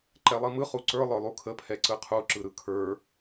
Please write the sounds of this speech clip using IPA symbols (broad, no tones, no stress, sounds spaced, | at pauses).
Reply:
ǃ ɛ lˠ i m ɯ χ u ǀ ə˞ lˠ ə˞ lˠ u kʰ ə pʰ ɛ ǀ ɯ qʰ u ǁ ɯ ɾ ɯ kʰ ə˞